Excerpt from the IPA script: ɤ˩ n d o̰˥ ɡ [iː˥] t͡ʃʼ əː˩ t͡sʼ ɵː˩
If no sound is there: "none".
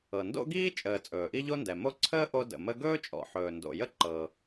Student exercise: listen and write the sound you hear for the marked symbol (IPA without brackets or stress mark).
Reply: iː˥